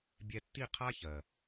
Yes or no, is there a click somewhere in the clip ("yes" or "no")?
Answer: no